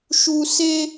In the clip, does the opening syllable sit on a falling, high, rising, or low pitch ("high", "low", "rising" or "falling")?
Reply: high